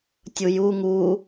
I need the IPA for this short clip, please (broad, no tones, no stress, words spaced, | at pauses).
tʲuju ŋu